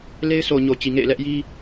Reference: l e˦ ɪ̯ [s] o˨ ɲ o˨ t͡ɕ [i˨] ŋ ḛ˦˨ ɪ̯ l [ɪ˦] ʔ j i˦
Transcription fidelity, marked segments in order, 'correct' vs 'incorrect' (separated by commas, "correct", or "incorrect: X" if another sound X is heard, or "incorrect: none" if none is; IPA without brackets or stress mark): correct, correct, incorrect: ɛ˦